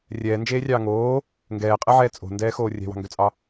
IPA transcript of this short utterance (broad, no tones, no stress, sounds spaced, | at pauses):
rʲ ɛː n d͡ʒ eː rʲ ɑː ŋ oː | ŋ ɡ ɛː qʼ ɛ ʕ ɛː t͡sʼ o̤ n d ɛː x oː rʲ ɛ̤ w ɑ̤ ŋ ɡ ø t͡sʼ ɑ